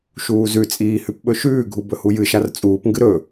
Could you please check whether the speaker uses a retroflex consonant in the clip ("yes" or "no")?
no